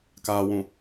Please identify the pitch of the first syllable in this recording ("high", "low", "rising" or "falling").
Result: low